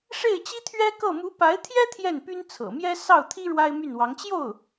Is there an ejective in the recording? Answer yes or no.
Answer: no